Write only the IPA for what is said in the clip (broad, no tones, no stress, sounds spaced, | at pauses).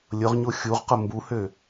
lʲ ʊ ʁ ɲ o xʲ u ʁ q ʊ m b u h ø